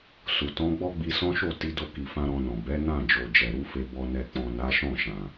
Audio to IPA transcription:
s u˨ t ɔ̃˨˦ ɡ͡b ɔ˦ ɡ͡b i˧ s ɔ̃˦ ʃ o˦˨ t i˨˦ d o˧ k i˨ f ã˧ ɾ ɔ̃˧ n ɔ̃˨ b ɛ˨˦ n ã˦˨ d͡ʒ o˨ d͡ʒ ɛ˨ ɾ u˧ f e˨ b ɔ˨ n ɛ˨ k͡p ɔ̃˨ n a˨˦ ʃ ɔ̃˦˨ ʃ ã˨

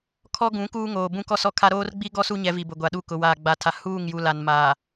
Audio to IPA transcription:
kʰ ɔ˦ ɡ ũ˨˦ k uː˦ ŋ oː˨ b ũ˦ k ɔ˦ s ɔ˦ kʰ a˦ ɾ oː˦ r ɡ͡b i˦ ɡ ɔ˦ s u˦ ɲ ɛ˨˦ v i˨ b ʊ˨ ɡʷ a˨ ɗ u˦ k ʊ˨ w aː˨ ɡ͡b a˨ tʰ a˨ h uː˦˨ ŋ j u˨ l a˨ n m aː˨

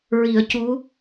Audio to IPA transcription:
ɹ i˨˩˦ ə̯ c u˧˥

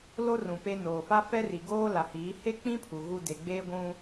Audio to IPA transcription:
l o˦ r ũ˨ p e˦ n oː˨ f a˦ f ɛ˦ r i˨ ɡ oː˦ l a˨ h iː˨˦ h e˦ k͡p ĩ˦ pʰ u˨ ɣ u˦ d e˨ ɡ͡b eː˦ ɡʷ ũ˦

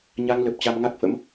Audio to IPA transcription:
ɲ a˧ ŋ l ə˨˩ p̚ t͡ɕ a˧ m ŋ a˦˥ k̚ f ə̰˧˥ m

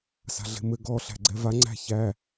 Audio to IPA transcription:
s a̤ ɮ e̤ m ɘ ɡ ɔ ɬ æ̤ ɡ͡ǀ ɛ v a ŋ͡ǀ æ̤ ç æ

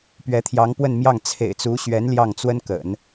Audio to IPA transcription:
p ɥ ɛ˧˥ t̪ʰ j ɑ˧˥ ŋ p w ə˥˧ n m j ɑ˥˩ ŋ t͡sʰ ḛ˨˩ ɪ̯ t͡s u˧˥ ɕ ɥ ɛ˧˥ n l j ɑ˥˩ ŋ t͡s w ə˥ n k ə̰˨˩˦ n

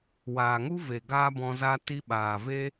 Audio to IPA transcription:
w aː˨ ŋ u˦ v e˨ ɡ aː˦ b ɔ̃˧ z a˧ t i˧ ɓ aː˨ v e˦

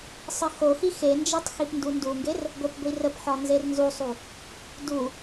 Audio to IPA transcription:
sˤ ə x o x i x e n d͡ʒ e tˤ x i p n d u n d u ŋ ɡ e r | ɡʷ ə p ɡʷ i r ə p ħ ɒ n z e r n z u sˤ u | d u

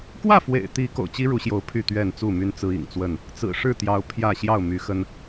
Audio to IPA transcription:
k w ä˥˨ f w ḛ˨˩ ɪ̯ t̪ i˨˦ k o̰˨˩ ʊ̯ t͡ɕ i˦ ɻ u˨˦ ɕ j o˨˦ ʊ̯ pʰ y˥˨ t̪ ɥ ɛ˥˨ n t͡s u˥˨ m y˦ n t͡s ɹ̩˦ ḭ˨˩ ŋ t͡s w ə˥˨ n | t͡s ɹ̩˨˩ ʂ ɻ̩˥˨ t̪ j ɑ˨˦ ʊ̯ pʰ j ä˥˨ ɕ j ɑ˥˨ ʊ̯ m y˨˦ x ə˦ n

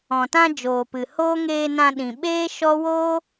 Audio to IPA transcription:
ɔ̃˨ t ã˧ d͡ʒ oː˨ p ɨ˨ h oː˦ ŋ eː˧ n ã˧ ɗ ĩ˨ ɓ eː˦ ʃ ɔ˦ w oː˦

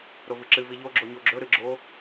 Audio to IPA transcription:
ɾ o v ɨ ǁ ɨ v i ʎ o ɡ͡ǁ o ɲ o ɡ͡ǁ ɵ ɾ ɨ ɡ͡ǁ o

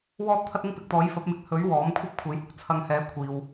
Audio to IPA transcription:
w ɔː˥ t̚ t̪ʰ ɐ˥ t̚ ɪ˥ ŋ p ɪ˨ k̚ t̪ ɔː˨˥ j f ɐ˨˥ p̚ m ɪ˧ k̚ h ɵ˨˥ ɥ w ɔː˨˥ m kʷʰ ɐ˥ p̚ kʷʰ e˨˥ j h ʊ˧ k̚ t͡sʰ ɐ˨˧ ŋ h ɛː˨˥ kʷʰ iː˨ w

